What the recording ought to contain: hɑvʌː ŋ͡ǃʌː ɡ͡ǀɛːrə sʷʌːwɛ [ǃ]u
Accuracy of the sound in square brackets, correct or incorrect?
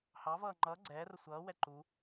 correct